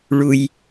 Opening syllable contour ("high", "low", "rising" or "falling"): low